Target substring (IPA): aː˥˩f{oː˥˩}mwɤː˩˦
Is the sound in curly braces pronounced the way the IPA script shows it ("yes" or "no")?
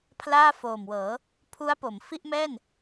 no